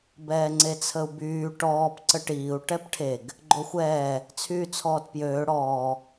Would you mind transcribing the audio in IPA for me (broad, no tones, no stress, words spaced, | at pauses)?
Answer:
bɛːŋ͡ǀet͡sʰəu̯byː ʈɔːp ǀəʈiːu̯ ʈɛpʈʰeɡ | ɡ͡ǃoxʷɛː | t͡sʰyːt͡sʰɔːtpjøː ɽɔː